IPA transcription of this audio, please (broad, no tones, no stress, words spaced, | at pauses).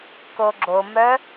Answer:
koɡ͡ǁomœ